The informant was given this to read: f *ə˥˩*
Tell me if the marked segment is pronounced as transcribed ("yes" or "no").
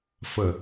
no